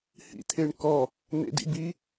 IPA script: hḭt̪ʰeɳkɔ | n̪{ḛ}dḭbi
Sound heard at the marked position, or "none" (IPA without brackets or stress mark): ḛ